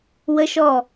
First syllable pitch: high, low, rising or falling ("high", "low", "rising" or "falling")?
high